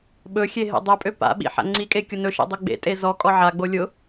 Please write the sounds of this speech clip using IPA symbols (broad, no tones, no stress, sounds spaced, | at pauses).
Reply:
ɓ ɵ xʲ e ɦ ḛ dˤ ø pʼ ø p a̰ ɓ ḭ ħ a̰ ŋ͡ǀ i kʼ e kʲ ʊ n ɵ ʃ ḛ dˤ ø ɡ͡b ḛ tʼ e z ɔ kʼ ɔ ʕ a ɡ͡b o lʲ ʊ